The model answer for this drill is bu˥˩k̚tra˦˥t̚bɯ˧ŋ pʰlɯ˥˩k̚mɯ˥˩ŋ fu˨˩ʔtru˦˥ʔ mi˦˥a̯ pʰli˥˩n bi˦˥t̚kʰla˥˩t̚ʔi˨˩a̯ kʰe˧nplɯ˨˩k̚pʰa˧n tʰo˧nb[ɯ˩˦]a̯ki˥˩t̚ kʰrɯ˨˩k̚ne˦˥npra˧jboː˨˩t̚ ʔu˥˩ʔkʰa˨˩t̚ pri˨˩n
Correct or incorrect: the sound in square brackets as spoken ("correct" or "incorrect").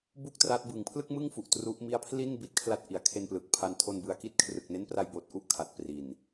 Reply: incorrect